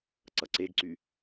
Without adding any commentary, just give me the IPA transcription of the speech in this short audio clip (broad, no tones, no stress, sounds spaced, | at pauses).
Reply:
ǀ ʌ ǀ e ɡ ǀ y